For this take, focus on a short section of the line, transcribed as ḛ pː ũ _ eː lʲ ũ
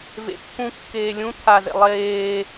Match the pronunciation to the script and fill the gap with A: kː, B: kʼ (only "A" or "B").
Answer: A